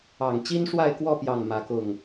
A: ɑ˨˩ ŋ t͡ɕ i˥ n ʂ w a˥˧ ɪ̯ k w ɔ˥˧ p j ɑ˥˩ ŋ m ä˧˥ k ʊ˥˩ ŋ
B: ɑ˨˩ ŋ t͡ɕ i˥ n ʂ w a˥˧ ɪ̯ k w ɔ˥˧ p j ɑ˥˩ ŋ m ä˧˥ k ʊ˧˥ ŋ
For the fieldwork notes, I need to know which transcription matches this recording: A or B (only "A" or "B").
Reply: A